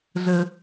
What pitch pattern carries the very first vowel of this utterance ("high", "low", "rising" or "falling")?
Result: high